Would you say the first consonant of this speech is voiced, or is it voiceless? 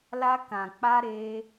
voiced